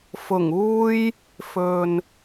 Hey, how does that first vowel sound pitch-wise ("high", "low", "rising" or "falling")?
low